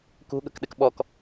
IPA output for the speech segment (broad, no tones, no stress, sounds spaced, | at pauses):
k ṳ ɠ ə̤ k ɗ ɪ k ɓ ɔ k